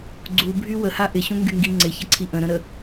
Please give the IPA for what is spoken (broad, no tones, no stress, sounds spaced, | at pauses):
ɡ͡ǀ u bʱ y w ə h a ʔ ɪ ɕ ũ ŋ ɡ y ŋ ɡ i ŋ͡ǀ ɪ ç ə ǀʰ i ʔ ə̃ ɾ ə̃ ɾ ə